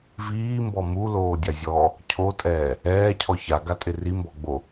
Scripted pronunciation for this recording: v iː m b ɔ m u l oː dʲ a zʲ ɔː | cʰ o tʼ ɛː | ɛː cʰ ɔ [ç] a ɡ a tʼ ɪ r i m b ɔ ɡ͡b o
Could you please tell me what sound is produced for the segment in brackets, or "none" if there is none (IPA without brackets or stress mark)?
ç